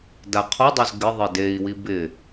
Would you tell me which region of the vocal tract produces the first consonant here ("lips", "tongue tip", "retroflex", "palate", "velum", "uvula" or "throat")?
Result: tongue tip